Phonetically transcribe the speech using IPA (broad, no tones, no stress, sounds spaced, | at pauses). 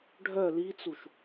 ɖʱ œ l i t͡s u ʃ